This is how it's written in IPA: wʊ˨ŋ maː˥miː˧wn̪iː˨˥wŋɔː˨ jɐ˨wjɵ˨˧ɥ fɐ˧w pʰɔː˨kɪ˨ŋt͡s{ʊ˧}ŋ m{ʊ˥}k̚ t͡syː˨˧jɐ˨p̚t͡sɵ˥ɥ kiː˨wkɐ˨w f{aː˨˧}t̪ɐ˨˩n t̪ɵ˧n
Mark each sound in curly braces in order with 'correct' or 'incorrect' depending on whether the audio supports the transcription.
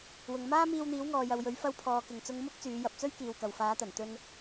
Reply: correct, correct, correct

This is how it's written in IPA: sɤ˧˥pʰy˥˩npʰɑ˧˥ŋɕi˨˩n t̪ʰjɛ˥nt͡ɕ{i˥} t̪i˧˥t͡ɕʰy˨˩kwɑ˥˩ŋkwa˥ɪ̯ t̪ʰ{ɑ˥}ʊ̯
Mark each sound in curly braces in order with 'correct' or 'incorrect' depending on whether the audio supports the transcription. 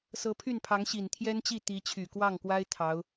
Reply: incorrect: i˥˩, incorrect: ɑ˧˥

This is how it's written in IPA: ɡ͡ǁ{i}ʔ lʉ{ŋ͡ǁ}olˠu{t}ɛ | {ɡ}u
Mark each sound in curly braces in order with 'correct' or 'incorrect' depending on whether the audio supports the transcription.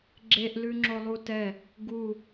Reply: incorrect: e, correct, correct, correct

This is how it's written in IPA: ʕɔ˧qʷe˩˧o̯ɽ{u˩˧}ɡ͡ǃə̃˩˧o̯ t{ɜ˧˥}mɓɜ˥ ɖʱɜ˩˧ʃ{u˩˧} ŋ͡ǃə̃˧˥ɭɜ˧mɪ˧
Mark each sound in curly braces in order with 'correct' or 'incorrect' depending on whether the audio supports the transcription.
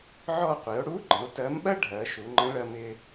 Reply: incorrect: u˧˥, correct, correct

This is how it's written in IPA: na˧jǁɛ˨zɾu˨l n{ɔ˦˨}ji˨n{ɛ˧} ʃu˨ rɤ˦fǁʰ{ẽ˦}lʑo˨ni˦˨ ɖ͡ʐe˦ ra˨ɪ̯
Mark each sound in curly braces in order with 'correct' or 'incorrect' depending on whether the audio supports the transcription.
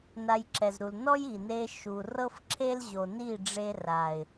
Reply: incorrect: ɔ˦, incorrect: e˧, incorrect: e˦

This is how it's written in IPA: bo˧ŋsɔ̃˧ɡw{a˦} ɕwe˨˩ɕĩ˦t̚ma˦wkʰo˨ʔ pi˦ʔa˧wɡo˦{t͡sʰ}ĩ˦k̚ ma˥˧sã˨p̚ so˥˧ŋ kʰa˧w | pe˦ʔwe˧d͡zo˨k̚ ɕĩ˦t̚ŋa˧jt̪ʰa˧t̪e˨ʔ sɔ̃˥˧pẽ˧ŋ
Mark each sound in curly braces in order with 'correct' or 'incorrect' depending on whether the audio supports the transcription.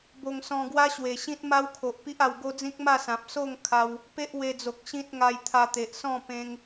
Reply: correct, incorrect: d͡z

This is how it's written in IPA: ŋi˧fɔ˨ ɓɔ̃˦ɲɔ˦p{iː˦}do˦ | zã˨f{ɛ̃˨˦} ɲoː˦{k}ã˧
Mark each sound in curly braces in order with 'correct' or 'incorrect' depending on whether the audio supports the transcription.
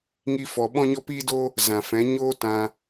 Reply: correct, correct, incorrect: t

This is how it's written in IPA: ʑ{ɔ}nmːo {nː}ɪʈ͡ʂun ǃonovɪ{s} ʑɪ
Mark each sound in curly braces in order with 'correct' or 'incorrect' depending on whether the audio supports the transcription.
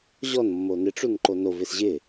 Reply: correct, incorrect: n, correct

